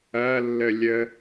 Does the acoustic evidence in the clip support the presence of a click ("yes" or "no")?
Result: no